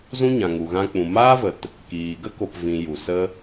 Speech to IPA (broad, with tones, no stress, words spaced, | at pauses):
zũ˦ɲã˨ŋu˨ ɣã˧k͡pũ˨ maː˦və˨t | kiː˨ ɡə˦ko˨pvĩ˨ ju˨sə˦